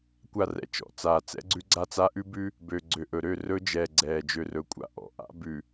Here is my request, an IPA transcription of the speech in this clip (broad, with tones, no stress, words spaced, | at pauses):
kʷa˦˨rɛ̰˨t͡ʃɔ̰˨t͡saː˨ t͡sɛ̰˦ɡ͡ǀʉ˦ɡ͡ǀa˦t͡sa˦ ʔʉ˦bʉ˦ | bø˨ ɡ͡ǀø˨ʔɵ˨ɾø˦˨ rɵ˦d͡ʒɛː˨ ɡ͡ǀɛː˨d͡ʒø˨rɵ˨kʷʼa̰˦ ʔɔ̰˨ʔa̰˦ bʉ˨